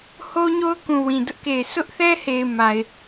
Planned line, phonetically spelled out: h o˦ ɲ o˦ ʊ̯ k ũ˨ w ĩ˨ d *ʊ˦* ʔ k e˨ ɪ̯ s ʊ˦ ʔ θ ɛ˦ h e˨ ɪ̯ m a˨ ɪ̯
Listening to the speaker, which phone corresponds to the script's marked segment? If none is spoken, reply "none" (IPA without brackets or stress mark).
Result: ʊ˦